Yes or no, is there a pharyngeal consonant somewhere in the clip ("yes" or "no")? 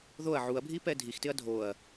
yes